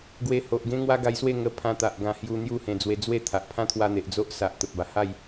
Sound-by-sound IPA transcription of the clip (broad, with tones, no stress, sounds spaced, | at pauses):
ɡ w e˧ h o˨ ʔ ɡ ẽ˦ ŋ w a˦ ɡ a˧ j s w e˥˧ ŋ ə˧ pʰ ã˧ t̪ a˨ ʔ ɡ ã˧ h j u˧ n̪ j u˥˧ h ẽ˧ d͡z w e˧ d͡z w e˥˧ t̪ʰ a˨ ʔ pʰ ã˦ t̪ʰ w a˧ n̪ e˨ ʔ d͡z o˦ ʔ s a˨ ʔ t̪ ə˨ p̚ b a˨˩ h a˥˧ j